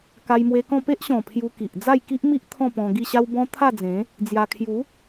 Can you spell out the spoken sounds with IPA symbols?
ka˧jmwe˧kɔ̃˥˧ pe˦ʔɕɔ̃˨˩ pʰju˧ki˨ʔ d͡za˥˧jki˦ʔmi˦ʔ t̪ʰɔ̃˥˧pɔ̃˧ ɡi˥˧ɕa˦wbɔ̃˦ t̪ʰa˥˧d͡zẽ˨˦ | d͡zja˧ kʰju˨˦

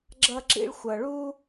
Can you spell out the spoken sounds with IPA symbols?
ɡ͡ǁʌ˥ǁḭ˥ɭ xʷʌ˦ ɭu˥

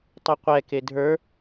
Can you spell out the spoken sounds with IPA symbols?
tˤɪqʷɛ kedʱə˞

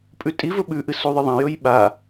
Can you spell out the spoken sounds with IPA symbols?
pʼʉtʼivɵ ɓʉʔɨ suðˤɨðˤɐ̃jɵj ɓa

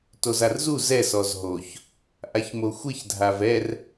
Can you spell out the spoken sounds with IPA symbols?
tozarzu zɛ sɔzɦoç | ʔaçmoxʷɪç dʱavɛr

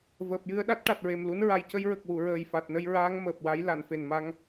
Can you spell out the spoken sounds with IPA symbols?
vəː˨˩p̚jɨ˧ə̯ɗa˦˥t̚ ʈa˨˩t̚ɹe˨˩mlu˧˥n ɹa˨˩jcə˧jɹə˨˩k̚wu˨˩˨ ɹəː˨˩jfa˨˩t̚nə˧jɹaː˧˥ŋ məː˨˩p̚wa˧˥j la˨˩˨nfe˨˩nma˧ŋ

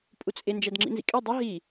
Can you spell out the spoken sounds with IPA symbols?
pʼut͡sʼɪ nd͡ʒɛdŋ͡ǁḭnzḭkʼɛ dˤə ɦi

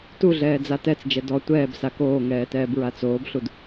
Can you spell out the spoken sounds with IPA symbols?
tuɮɛː d͡zatɛt͡sd͡ʒɛ dɔ tʷɛːb sakoːŋɛː tɛːbɹat͡soːbɬud

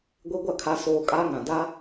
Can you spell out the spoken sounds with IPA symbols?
ɡʷe˦ɡʷa˦˨kʰa˦ soː˦ kʼaː˦ŋã˨ da˦

